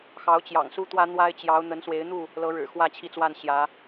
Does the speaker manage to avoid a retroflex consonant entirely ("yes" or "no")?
no